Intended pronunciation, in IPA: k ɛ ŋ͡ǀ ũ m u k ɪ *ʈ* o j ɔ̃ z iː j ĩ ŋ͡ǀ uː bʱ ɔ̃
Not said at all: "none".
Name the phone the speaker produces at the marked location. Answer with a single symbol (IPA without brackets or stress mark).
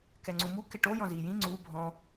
ʈ